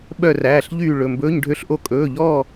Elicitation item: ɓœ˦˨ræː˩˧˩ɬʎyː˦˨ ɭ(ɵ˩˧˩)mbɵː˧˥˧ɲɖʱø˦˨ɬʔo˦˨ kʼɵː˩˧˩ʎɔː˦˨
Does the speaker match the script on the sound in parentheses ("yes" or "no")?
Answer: yes